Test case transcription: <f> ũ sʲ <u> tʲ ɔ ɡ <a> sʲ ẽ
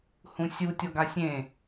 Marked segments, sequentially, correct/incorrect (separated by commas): incorrect, correct, correct